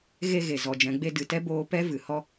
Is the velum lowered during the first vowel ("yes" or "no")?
no